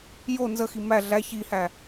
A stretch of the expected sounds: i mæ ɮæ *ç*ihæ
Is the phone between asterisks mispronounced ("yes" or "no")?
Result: no